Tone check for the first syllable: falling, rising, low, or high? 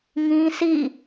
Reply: high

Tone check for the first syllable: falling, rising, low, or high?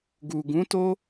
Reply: low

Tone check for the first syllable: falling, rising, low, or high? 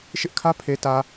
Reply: high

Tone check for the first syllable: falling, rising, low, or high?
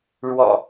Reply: low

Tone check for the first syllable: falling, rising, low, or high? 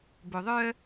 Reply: low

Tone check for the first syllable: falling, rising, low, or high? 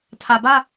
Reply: low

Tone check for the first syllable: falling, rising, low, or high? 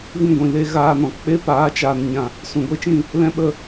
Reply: falling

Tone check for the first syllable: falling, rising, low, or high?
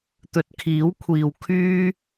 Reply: rising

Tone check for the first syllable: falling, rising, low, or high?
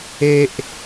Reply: high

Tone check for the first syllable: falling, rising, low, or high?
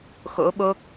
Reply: rising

